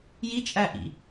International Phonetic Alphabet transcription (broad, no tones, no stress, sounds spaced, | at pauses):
j i t͡ʃʼ æ ʔ ḭ